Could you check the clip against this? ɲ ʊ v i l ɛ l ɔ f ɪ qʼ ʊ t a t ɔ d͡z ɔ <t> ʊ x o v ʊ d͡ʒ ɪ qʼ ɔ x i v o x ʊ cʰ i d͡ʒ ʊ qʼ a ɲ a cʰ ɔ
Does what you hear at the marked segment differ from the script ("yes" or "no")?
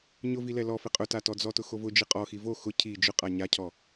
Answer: no